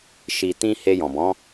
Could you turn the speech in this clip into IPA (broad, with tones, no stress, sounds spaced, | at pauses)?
ʃ i˨ t ĩ˧ h e˧ j ɔ̃˨ b ɔ̃˨˦